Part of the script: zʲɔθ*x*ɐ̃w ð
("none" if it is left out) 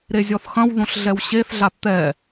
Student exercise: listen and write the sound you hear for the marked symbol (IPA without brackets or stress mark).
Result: x